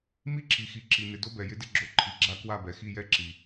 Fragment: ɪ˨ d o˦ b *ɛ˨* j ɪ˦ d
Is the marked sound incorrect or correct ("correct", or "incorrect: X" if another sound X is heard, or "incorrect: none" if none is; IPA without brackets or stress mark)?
correct